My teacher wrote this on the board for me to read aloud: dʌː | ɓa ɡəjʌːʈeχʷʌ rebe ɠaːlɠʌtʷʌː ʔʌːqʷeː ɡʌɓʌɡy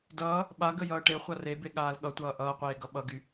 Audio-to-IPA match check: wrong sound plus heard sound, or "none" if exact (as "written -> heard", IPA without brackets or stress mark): none